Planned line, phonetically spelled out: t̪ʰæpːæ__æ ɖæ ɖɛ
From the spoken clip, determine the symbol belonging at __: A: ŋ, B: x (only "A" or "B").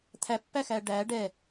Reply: B